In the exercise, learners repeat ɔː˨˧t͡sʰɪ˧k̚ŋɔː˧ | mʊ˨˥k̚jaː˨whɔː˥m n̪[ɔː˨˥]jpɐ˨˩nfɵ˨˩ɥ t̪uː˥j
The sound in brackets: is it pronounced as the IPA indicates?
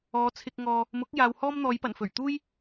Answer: no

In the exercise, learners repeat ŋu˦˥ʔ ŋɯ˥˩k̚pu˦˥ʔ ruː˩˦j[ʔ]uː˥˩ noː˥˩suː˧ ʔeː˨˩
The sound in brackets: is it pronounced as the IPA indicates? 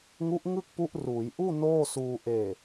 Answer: yes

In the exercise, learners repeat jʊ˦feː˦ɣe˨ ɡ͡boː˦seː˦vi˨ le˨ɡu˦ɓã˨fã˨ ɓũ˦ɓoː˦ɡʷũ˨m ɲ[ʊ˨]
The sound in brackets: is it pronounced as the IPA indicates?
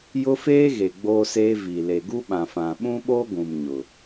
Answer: yes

